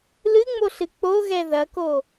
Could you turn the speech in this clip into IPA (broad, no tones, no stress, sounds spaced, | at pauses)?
l ɨ ŋ͡m o ɬ ɨ k͡p o ɣ ɛ ð ɐ k o